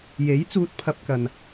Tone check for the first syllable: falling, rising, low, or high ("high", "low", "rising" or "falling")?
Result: rising